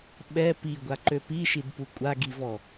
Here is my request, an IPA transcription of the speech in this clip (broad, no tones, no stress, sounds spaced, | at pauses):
ɓ ɛ p i ɡʷ a ǃ ø p i ʃ i d p u kʷʼ a ɡ i v ɔ